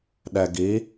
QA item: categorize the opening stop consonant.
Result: implosive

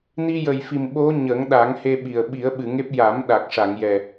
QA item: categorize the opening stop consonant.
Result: implosive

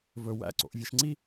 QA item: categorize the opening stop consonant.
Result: click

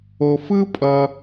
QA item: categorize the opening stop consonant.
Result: ejective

